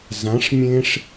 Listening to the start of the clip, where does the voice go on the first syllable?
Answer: rising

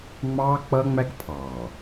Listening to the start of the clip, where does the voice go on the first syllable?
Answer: high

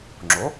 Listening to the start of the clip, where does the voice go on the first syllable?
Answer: rising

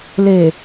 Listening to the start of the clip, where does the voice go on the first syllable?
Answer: low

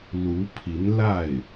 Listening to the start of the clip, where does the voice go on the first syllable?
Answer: rising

